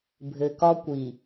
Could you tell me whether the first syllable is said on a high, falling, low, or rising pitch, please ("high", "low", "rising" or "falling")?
low